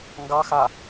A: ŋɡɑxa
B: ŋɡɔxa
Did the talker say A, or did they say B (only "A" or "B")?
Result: A